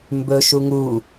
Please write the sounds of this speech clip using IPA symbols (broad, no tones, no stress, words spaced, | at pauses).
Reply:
mbɵ ʃuŋu